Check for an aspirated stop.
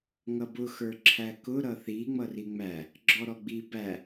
present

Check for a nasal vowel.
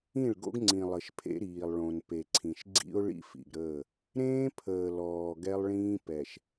present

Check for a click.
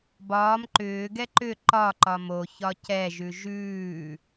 present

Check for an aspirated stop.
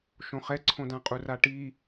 present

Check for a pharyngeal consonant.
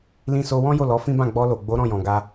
absent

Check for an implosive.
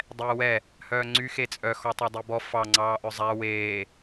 absent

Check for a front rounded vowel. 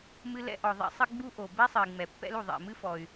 present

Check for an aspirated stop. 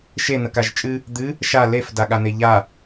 absent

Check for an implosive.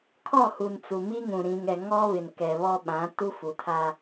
present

